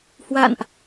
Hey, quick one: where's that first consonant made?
throat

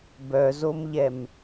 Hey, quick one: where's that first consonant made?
lips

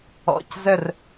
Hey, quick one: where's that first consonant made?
palate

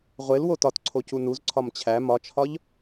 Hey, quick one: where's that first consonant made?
uvula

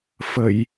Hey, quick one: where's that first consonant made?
lips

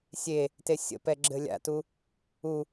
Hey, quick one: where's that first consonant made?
tongue tip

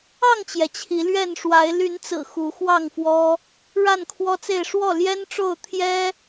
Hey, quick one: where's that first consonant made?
velum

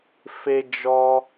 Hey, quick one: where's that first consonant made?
lips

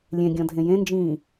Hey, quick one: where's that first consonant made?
tongue tip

